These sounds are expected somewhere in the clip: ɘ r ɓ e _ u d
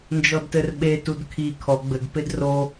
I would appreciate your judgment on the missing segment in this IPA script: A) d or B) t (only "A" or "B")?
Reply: B